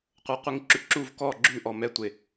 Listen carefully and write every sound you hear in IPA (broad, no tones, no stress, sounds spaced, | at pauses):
qʷ ɤ qʷ i ŋ ǁ ʉ ǁ u v k ɔ ɡ͡ǁ ʉ ʔ ɔ m ɛ tʷ e